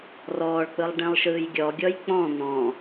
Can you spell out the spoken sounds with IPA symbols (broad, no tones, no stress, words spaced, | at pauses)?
rɔːɭk͡pɯlˠ ɖẽlˠʃɯːjɡʲɔɡʲɔj k͡pɔ̃ n̪ɔ̃